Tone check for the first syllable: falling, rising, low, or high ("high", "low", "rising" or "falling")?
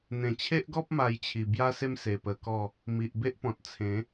low